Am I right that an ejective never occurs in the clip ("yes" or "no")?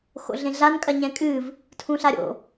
no